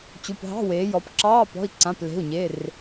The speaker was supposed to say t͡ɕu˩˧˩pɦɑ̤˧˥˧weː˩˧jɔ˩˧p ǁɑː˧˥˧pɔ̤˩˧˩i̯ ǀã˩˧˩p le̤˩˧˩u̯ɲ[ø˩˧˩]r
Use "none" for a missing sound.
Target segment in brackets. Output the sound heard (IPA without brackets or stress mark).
e˩˧˩